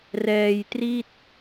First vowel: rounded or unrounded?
unrounded